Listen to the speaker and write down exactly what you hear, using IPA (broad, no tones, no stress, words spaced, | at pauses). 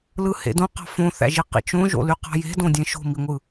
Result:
lɯhḛdõqɑ̤ fõθæ̰ʒi qḭt͡ʃõʒo̰ly qɑ̤je̤dõdʲẽ ʃo̤miŋʷɯ